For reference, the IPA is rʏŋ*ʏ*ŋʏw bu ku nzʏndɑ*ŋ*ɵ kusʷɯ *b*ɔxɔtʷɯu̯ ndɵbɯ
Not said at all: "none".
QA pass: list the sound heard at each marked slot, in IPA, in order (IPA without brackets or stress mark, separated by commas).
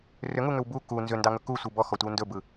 u, ŋ, b